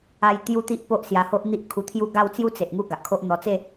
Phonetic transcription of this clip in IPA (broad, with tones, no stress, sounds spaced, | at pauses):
a˦ j t̪ j u˦ t̪ i˦ ʔ p o˦ ʔ s j a˧ h o˦ ʔ n̪ i˦ ʔ kʰ u˧ t̪ʰ j u˥˧ ɡ a˥˧ w t͡s j u˦ t͡s e˨ ʔ ŋ u˥˧ ɡ a˨ ʔ kʰ o˦ ʔ n̪ ɔ˧ t͡s e˥˧